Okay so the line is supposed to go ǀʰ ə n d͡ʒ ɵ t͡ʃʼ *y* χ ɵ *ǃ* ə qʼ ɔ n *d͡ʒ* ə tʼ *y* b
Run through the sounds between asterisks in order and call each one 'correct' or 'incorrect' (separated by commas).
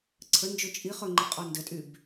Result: incorrect, incorrect, incorrect, correct